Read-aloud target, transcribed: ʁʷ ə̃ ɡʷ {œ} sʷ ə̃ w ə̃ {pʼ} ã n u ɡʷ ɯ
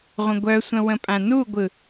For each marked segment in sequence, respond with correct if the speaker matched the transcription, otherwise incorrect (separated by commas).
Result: correct, correct